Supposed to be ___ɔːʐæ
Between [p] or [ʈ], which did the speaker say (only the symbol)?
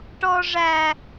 ʈ